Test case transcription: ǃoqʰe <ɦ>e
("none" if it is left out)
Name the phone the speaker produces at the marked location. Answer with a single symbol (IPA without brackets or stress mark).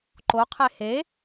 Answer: h